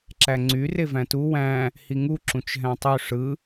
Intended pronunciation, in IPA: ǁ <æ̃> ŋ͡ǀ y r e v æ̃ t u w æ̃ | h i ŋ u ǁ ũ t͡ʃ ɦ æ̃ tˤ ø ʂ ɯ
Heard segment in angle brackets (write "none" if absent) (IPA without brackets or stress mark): æ